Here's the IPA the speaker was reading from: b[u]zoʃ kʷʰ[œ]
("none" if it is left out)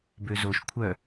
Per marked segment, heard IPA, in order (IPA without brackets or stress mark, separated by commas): ø, œ